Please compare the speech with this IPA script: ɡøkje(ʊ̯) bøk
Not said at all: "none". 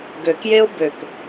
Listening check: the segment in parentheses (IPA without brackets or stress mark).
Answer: ʊ̯